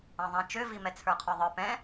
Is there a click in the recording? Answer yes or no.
no